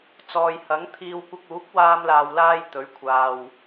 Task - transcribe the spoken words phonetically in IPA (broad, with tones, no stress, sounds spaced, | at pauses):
t͡s ɔː˨ j h ɐ˨˥ ŋ t̪ʰ iː˧ w kʷ ɐ˧ k̚ uː˨˥ k̚ w aː˧ m l aː˨ w l aː˥ j t̪ ɵ˨˥ ɥ kʷʰ aː˨ w